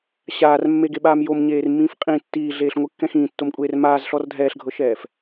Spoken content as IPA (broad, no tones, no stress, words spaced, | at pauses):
ɕaːrmːeɡeɓaːm jomɲeːrmːĩːf qʼĩ tːiːɮeːɬŋʷɯkːɛ̃ xĩːtːomkʷʼeːr maːzɬɔr dʱɛːɬɡʱɤʃɛːf